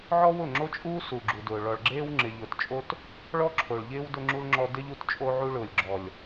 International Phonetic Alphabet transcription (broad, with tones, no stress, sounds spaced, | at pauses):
ʕ ɔ˦ w ʊ˦˨ ŋ͡ǁ o˦ t͡ʃʼ uː˦ s u˨ ɡ͡ǁ u˨ d ʊː˨ ɭ ɔ˨ ɭ ɡ͡ǁ eː˦ w ŋ͡ǁ ɪ˨ ʎ ʊː˨ t t͡ʃʼ o˦ t | ɭ ɔ˦ ǁʰ o˨ ɭ ʎ ɪː˦ w d ʊ˦ ŋ͡ǁ u˦ l ŋ͡ǁ ɔ˦ d ɪ˦ ʎ u˦ t t͡ʃʼ o˦ ʕ u˦ ɭ ʊː˨ lʲ ɡ͡ǁ ɔ˨ lʲ